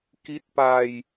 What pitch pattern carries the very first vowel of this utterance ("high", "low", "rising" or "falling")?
rising